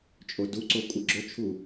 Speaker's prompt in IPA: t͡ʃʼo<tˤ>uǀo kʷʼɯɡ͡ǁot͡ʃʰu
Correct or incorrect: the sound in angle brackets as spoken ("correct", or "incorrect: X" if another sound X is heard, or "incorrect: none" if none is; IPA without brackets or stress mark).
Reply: incorrect: d